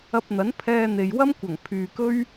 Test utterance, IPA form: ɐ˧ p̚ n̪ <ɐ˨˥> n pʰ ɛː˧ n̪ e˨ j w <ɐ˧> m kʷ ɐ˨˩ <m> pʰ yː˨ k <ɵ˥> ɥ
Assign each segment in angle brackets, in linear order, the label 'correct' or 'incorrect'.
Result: correct, incorrect: ɐ˥, incorrect: ŋ, correct

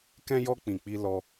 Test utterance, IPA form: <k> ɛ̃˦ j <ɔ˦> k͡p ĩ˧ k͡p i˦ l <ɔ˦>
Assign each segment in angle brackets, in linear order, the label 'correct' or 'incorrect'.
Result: correct, correct, correct

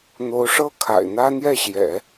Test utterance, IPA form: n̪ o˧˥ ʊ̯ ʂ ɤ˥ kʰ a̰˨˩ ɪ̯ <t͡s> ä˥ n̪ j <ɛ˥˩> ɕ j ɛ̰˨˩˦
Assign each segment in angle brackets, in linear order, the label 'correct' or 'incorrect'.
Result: incorrect: n̪, correct

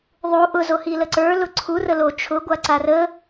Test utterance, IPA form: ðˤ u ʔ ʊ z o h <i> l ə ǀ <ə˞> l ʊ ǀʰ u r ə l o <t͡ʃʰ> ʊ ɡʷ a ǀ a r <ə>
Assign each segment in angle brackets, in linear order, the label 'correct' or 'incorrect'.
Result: correct, correct, correct, correct

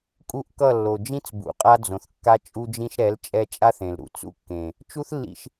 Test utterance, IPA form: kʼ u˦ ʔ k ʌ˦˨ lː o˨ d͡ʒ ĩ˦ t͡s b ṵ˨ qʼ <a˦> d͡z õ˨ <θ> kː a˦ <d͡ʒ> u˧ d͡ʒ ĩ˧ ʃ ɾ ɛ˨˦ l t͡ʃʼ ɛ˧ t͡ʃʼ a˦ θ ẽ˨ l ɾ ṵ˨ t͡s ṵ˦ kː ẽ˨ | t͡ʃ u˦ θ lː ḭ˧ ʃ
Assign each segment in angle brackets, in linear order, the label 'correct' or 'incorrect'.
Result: correct, correct, incorrect: t͡ʃʼ

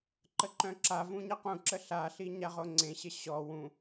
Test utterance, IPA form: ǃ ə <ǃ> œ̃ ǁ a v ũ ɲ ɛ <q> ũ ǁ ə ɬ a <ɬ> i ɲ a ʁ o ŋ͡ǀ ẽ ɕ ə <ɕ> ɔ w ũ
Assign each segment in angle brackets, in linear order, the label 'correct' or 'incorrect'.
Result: correct, correct, correct, correct

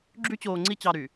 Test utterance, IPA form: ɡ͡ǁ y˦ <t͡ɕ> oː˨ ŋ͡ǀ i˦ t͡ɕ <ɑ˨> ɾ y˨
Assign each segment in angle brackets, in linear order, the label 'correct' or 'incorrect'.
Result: correct, correct

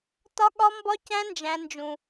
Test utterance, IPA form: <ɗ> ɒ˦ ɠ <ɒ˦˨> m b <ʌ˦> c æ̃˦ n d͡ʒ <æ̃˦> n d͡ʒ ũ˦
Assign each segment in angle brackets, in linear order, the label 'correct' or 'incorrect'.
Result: incorrect: t, incorrect: ɒ˦, incorrect: ɒ˦, correct

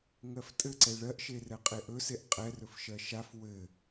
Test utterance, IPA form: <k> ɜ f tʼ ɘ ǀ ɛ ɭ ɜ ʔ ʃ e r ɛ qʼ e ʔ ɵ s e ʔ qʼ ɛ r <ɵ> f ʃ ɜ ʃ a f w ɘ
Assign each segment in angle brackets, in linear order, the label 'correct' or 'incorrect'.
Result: incorrect: ŋ, correct

